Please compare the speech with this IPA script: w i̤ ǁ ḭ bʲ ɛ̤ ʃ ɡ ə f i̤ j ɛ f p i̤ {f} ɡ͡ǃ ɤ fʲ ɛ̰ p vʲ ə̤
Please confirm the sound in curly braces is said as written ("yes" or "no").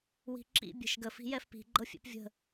no